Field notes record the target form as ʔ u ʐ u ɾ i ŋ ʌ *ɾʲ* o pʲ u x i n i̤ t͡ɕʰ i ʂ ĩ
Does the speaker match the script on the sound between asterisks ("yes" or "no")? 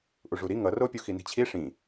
no